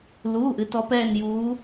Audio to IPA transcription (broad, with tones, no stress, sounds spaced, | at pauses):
l uː˩˧˩ ʔ ɨ˩˧ t ɔ˩˧ p ɛː˧˩ n j uː˩˧